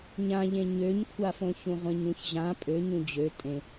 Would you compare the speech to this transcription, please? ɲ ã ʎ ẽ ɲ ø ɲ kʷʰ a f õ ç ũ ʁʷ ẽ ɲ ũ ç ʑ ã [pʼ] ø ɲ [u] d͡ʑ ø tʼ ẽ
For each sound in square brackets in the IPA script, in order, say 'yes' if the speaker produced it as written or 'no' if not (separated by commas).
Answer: yes, no